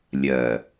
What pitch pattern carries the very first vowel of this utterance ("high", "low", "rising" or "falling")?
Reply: low